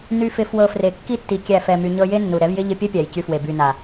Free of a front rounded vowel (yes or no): no